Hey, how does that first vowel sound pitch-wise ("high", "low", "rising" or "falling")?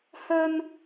high